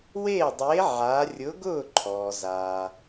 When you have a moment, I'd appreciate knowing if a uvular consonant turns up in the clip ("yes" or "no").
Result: no